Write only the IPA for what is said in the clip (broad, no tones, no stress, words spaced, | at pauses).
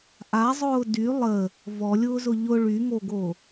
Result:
ʔazˤʊː dy lˠə | vɔlʲʊːzʊ ʎʊ ɭyŋoɡo